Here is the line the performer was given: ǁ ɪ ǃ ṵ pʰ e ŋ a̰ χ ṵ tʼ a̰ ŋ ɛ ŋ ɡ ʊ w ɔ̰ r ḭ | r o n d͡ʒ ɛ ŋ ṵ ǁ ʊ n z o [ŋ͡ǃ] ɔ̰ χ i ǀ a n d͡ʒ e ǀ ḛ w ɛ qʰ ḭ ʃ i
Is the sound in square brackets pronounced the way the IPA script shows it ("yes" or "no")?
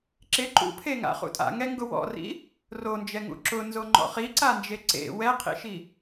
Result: yes